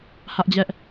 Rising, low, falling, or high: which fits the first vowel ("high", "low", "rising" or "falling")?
high